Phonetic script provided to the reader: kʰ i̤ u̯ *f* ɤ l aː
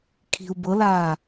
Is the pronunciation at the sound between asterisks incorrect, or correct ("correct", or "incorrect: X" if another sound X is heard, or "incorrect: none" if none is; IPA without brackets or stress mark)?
incorrect: b